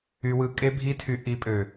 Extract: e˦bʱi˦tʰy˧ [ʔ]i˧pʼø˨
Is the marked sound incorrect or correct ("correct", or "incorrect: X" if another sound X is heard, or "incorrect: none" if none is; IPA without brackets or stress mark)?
correct